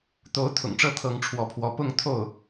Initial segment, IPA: t̪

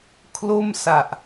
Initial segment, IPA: kʰ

